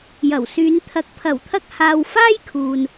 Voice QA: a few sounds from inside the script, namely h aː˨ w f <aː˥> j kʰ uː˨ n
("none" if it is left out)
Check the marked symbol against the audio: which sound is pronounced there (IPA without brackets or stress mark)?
aː˥